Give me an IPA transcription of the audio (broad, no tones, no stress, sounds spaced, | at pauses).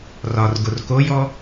r ɒ r ɡ o r k o j ɔ